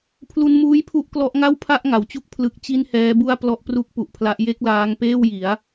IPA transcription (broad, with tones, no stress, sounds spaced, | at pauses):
pʰ l u˧ n m uː˦˥ j pʰ u˦˥ ʔ k l ɔ˦˥ ʔ ŋ a˥˩ w pʰ a˥˩ ʔ ŋ a˩˦ w t͡ɕ u˥˩ k̚ pʰ l ɯ˦˥ k̚ t͡ɕ i˥˩ n h ɛː˦˥ b u˥˩ a̯ p l ɔ˥˩ ʔ p r u˥˩ k̚ p u˨˩ ʔ pʰ l a˦˥ ʔ j e˥˩ k̚ l aː˦˥ ŋ p eː˥˩ w j i˩˦ a̯